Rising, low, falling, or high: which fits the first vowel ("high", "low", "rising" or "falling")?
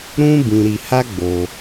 high